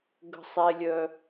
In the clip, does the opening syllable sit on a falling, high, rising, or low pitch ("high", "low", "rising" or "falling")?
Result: high